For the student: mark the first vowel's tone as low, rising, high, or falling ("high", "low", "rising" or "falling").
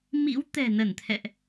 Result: rising